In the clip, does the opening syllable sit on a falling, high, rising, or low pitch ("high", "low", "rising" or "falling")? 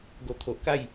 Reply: low